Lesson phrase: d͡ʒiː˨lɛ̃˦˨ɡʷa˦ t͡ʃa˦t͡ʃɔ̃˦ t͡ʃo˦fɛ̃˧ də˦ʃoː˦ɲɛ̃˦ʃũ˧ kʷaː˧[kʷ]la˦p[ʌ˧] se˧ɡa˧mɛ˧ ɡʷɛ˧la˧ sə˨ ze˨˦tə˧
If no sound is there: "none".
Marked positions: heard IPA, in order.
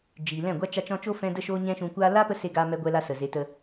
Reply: none, ə˧

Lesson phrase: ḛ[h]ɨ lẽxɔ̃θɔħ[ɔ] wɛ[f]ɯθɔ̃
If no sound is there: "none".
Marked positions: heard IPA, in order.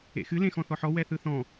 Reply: x, ɔ, θ

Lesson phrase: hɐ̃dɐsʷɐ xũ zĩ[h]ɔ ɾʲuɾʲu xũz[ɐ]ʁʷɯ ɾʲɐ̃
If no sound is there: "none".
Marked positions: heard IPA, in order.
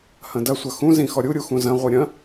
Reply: x, ɐ̃

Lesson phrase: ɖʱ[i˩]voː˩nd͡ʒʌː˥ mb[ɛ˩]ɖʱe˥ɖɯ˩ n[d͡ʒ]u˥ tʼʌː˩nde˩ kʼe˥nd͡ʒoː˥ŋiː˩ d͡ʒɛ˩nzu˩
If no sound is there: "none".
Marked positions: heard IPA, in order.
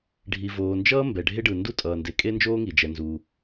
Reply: i˩, ɛ˩, d

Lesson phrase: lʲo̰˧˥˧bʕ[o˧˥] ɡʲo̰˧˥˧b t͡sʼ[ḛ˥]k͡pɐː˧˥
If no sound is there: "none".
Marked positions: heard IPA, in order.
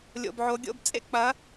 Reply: o˧˥, ḛ˥

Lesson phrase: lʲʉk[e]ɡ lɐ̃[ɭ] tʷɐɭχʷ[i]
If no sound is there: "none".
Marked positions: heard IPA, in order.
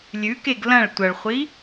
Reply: e, ɭ, i

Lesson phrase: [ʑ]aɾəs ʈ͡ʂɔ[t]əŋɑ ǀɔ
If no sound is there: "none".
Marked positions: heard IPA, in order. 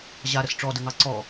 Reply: ʑ, d

